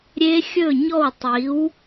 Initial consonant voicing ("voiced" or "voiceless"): voiced